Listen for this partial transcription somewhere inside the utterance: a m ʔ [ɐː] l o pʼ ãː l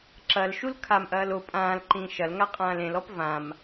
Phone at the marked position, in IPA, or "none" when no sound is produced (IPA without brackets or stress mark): ɐː